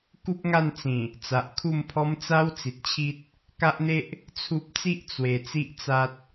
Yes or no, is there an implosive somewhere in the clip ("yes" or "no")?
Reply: no